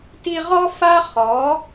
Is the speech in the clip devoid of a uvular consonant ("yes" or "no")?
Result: no